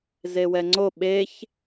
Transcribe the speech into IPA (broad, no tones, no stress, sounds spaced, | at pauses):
z e w ɛ ŋ͡ǀ o ɓ e ç